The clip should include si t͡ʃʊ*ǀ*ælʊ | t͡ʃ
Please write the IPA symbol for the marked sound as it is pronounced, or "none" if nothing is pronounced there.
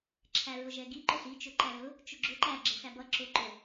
ǃ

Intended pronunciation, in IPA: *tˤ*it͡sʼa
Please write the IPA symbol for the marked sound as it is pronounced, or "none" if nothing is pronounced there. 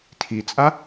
tʰ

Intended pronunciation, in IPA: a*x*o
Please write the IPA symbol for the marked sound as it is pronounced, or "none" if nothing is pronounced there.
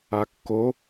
kː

